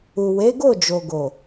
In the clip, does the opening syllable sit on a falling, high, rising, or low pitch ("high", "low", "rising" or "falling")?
low